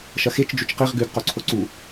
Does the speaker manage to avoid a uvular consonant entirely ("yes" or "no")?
no